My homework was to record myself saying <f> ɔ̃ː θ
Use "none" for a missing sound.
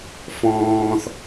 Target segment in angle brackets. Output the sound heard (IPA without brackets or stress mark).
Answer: f